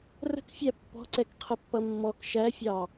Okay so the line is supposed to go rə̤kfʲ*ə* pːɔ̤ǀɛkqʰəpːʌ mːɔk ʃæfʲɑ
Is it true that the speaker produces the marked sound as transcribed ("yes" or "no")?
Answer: no